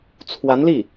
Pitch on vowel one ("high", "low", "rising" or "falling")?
rising